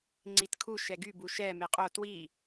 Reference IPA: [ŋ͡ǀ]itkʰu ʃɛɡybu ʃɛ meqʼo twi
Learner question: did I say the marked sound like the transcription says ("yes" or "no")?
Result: yes